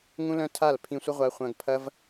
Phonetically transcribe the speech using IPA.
ŋũ˦lœ̃˦ tʰa˦˨l pʰĩ˧sʷə˦ʁʷa˧ χʷɐ̃˧ɡpʰɐ˦v

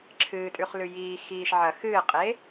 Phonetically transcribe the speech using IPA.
ǁʰɨːtʼʉχlʉ jiː xiːʃ ʕɐ xɨːqʼe

